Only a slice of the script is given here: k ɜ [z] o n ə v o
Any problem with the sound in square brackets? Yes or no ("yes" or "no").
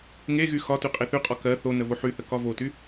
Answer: yes